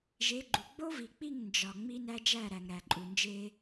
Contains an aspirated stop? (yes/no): no